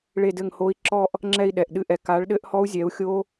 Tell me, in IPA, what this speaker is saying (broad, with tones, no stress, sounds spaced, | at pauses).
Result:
ɭ e˥˧ d ɘ˥˧ ŋ h o˦˥ i̯ ǁ ɔ˥˧ ʔ | ŋ͡ǁ ɛ˥˧ i̯ ɗ ɛ˨˩ ʔ ɗ ɨ˥˧ ʔ ɛ˨˥ k a˨˥ ɭ ɗ ɘ˦˥ ʔ h ɔ˦˥ u̯ zʲ ɛ˨˥ u̯ xʲ o˦˥